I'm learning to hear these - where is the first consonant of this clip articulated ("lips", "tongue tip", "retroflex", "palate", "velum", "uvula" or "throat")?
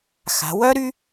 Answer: velum